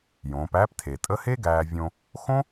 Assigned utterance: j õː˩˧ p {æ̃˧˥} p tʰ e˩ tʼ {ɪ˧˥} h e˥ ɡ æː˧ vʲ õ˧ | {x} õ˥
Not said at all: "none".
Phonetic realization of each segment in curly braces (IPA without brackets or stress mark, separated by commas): æ˧˥, ə˧˥, x